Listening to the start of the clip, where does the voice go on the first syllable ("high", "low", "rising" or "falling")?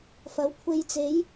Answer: rising